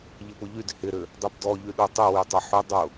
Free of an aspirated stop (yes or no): yes